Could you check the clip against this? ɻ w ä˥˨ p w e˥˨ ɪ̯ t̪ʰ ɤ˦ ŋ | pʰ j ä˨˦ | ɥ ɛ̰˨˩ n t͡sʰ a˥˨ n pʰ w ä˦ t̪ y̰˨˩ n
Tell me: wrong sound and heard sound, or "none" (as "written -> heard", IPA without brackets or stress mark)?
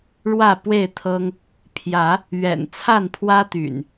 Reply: none